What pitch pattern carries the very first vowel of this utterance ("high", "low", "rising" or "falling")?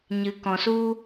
rising